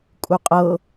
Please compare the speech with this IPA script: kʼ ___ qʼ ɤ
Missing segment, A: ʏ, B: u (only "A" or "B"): B